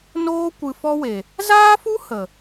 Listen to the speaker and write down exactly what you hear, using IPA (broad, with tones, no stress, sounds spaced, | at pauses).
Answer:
n oː˦ kʷ ɨ˧ f ɔ˦ w e˨ | z aː˦ f u˦ h ə˨